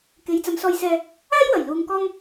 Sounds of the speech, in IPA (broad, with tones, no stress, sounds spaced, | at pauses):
k e˨˧ j t͡s ɐ˨˧ m s ɔː˧ j s ɛː˧ | aː˥ j w ɐ˨˩ j l uː˨ ŋ k ɔː˥ ŋ